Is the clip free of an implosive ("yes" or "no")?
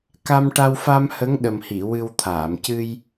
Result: no